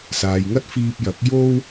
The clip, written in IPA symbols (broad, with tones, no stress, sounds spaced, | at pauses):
s aː˨ j ŋ ɐ˥ t̚ f iː˧ p̚ j ɐ˨˥ k̚ j o˥ w